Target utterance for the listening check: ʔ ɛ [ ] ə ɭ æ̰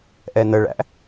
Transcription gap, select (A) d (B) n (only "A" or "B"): B